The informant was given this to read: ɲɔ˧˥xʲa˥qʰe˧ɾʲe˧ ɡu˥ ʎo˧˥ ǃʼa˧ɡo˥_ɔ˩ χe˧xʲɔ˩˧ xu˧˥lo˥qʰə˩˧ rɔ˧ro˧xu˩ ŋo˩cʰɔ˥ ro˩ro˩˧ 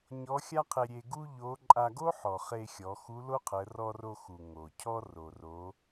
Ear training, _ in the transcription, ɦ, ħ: ħ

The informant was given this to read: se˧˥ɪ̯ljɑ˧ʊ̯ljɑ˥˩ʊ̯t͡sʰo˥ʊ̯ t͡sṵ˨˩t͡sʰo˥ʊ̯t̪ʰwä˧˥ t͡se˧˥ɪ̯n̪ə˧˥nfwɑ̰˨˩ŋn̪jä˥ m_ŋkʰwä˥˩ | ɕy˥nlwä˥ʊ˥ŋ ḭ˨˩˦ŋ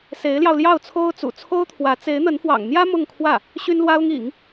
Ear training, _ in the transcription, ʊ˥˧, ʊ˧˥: ʊ˥˧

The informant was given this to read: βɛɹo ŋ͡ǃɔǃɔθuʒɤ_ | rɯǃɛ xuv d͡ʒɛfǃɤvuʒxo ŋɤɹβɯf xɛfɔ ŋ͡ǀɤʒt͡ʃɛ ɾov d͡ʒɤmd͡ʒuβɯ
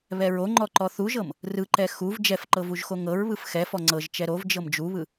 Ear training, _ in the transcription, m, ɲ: m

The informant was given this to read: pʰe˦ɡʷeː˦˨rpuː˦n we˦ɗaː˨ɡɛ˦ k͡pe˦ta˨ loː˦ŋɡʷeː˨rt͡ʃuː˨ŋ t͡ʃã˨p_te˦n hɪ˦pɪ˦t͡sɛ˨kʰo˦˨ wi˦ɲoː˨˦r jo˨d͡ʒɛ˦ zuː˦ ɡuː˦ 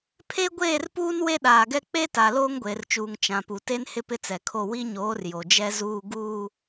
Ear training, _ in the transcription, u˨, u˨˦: u˨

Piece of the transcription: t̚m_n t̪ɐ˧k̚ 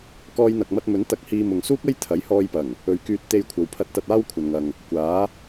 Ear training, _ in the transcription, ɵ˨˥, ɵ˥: ɵ˨˥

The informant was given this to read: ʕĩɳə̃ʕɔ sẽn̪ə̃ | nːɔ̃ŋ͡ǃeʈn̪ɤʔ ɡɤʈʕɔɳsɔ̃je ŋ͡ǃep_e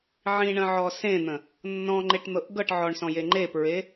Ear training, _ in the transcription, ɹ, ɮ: ɹ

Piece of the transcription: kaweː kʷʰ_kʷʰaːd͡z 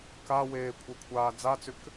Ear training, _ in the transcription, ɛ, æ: ɛ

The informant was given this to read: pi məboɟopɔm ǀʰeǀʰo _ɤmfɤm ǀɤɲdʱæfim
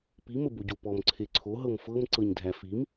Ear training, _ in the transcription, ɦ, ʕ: ɦ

